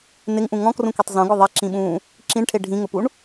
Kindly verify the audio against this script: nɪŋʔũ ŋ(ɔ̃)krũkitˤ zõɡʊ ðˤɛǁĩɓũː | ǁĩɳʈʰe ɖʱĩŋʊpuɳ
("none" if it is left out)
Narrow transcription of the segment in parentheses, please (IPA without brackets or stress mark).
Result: ɔ̃